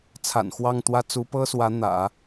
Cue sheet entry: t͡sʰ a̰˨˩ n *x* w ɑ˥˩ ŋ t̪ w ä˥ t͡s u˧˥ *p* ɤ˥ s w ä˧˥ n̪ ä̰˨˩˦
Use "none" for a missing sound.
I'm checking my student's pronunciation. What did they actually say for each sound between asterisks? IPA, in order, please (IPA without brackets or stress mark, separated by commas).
x, p